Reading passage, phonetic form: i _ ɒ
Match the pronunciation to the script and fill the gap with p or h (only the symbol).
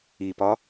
p